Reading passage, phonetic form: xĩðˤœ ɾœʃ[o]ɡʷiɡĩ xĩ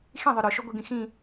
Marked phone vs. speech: correct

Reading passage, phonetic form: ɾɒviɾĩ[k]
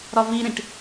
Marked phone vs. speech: incorrect: ʈ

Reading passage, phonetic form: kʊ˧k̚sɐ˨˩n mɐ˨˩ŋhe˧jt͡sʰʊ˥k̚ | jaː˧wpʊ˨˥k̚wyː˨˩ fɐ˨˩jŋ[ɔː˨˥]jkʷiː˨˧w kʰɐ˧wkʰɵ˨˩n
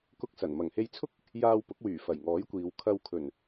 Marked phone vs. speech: correct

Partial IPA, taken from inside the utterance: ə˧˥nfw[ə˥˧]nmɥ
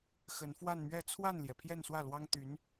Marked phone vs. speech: incorrect: a˥˧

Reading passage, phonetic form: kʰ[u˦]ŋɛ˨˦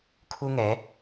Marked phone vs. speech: correct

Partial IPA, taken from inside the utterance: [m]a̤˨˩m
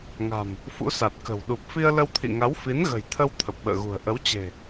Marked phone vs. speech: incorrect: ŋ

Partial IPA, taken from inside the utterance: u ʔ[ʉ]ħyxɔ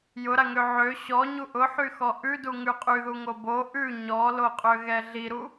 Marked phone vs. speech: incorrect: ʊ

